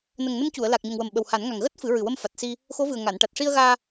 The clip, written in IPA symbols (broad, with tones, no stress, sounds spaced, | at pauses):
n ə˨˩ ŋ n ə˧ m c u˨˩˨ ə̯ l a˨˩ k̚ ɲ o˨˩ ŋ w ə˨˩ m ɓ ə˨˩ w h a˨˩˦ n ŋ a˨˩ ŋ ɣ əː˦˥ t̚ f ɨ˨˩˦ ɹ ɨ˨˩ w ə˧ m f a˨˩ t̚ s i˧ | x o˧˥ v ɨ˨˩ ə̯ ŋ a˨˩˨ n ʈ a˨˩ t̚ ʂ i˧ ə̯ ɣ aː˧